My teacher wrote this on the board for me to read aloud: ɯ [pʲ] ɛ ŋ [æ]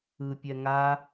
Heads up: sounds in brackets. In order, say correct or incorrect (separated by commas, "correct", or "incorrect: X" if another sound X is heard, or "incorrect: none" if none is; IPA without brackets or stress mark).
correct, incorrect: a